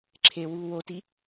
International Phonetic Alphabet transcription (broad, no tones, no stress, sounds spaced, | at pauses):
ǁʰ e w uː w o t i